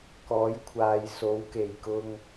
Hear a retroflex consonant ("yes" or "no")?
no